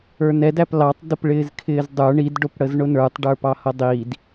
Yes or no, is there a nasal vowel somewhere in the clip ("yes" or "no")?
no